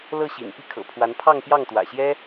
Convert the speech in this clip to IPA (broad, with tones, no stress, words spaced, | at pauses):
lɤ˥˩ɕḭ˨˩n pi˥˩kʰɤ̰˨˩pʰwa˧˥n pʰɑ˥˧ŋpjɑ˥˩ŋt̪wä̰˨˩ɕjɛ˥